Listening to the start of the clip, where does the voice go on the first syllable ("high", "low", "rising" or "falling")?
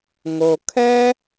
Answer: low